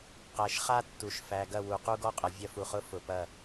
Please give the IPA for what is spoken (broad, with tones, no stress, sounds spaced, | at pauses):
q æ˨ ʃ χ a˦ tː u˨ ʃ f æ˨ ɡ ɐ˦˨ w u˨ q u˦ ɡ ɔ˦ qʼ ɐ˨ vʲ ɐ˦ f u˨ χ ʊ˦ f ʊ˨ p ɐ˦˨